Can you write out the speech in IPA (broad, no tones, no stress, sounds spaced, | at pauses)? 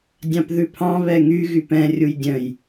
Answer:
dʲ ɑ̃ p ð ʉ pʰ ɑ̃ β ɛ ŋ y ɣ y p ɛ̃ rʲ u j dʲ œ̃ j